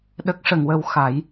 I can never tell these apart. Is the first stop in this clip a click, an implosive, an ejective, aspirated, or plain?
implosive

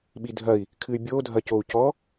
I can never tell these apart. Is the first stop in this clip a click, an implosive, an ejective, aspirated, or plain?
implosive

